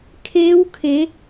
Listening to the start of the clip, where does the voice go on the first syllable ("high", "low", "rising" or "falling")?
rising